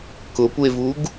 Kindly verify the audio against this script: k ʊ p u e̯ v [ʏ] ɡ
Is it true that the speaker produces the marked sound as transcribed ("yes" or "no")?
no